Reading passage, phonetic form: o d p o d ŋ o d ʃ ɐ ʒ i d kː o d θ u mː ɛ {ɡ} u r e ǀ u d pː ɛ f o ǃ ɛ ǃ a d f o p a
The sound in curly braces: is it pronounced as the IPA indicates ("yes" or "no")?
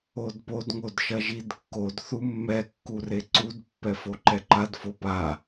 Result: no